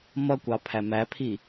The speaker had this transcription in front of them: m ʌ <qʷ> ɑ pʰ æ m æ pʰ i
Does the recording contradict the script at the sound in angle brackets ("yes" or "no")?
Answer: yes